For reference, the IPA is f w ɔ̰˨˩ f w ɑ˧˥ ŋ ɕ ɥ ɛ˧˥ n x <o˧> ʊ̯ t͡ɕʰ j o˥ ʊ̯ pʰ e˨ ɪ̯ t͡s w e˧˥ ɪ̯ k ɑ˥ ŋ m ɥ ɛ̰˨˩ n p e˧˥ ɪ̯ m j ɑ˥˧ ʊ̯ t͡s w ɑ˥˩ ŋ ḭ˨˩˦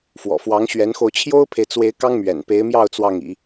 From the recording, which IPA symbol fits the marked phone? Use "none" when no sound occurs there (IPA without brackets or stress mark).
o˧